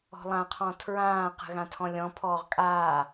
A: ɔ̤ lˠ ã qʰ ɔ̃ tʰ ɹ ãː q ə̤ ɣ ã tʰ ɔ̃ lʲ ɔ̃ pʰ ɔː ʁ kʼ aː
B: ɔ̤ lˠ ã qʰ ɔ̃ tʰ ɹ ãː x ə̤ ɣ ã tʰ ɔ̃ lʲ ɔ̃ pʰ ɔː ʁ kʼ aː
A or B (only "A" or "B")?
A